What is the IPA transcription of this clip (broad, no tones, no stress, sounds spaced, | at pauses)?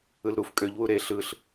ɯ l ɾ u f kʼ ø ʎ w u ɾ e ɬ ɯ ɬ